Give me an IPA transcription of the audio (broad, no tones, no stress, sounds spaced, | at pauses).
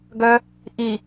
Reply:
ɡ œ | ʔ i